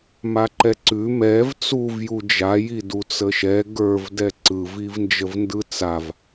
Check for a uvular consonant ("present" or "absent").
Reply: absent